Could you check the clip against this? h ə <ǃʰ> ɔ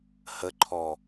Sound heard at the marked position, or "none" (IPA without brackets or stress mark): ǃʰ